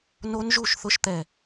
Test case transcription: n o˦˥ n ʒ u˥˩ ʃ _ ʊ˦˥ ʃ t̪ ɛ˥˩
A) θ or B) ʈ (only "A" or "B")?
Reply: A